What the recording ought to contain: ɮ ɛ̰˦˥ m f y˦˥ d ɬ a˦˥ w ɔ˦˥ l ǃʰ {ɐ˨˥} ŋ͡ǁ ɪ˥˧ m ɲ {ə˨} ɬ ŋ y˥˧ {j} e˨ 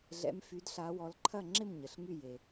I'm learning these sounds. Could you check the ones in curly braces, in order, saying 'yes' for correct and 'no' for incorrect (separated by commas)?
no, yes, yes